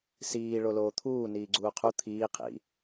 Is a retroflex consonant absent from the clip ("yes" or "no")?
no